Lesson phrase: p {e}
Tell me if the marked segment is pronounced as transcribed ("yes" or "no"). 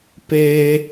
yes